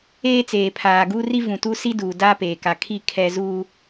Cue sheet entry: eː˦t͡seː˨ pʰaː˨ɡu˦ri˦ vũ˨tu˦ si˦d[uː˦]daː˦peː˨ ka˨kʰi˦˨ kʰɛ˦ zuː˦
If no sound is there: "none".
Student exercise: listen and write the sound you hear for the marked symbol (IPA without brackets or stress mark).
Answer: uː˨